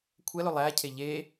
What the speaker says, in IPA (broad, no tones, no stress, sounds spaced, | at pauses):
kʷʰ ɛ l ɵ lˠ æ cʰ e ʎ e